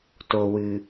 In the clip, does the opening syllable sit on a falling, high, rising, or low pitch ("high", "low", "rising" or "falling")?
low